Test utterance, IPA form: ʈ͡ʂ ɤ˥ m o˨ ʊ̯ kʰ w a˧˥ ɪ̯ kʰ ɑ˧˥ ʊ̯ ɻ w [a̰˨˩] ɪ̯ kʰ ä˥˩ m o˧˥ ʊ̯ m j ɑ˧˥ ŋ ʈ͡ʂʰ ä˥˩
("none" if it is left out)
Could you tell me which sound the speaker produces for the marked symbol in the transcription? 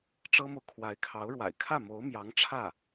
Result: a̰˨˩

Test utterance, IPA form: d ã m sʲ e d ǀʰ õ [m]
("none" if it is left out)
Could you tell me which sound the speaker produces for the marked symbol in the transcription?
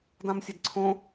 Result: none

